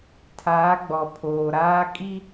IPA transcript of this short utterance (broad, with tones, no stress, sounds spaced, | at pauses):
tʰ aː˨˦ ɡ͡b ɔ˨ pʰ oː˨ ɾ aː˦ kʼ i˦